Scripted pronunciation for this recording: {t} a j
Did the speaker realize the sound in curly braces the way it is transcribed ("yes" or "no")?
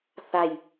no